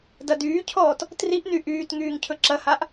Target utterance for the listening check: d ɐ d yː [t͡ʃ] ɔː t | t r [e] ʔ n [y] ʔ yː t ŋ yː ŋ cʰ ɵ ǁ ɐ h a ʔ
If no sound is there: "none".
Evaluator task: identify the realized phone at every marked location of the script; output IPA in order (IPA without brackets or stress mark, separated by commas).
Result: cʰ, i, y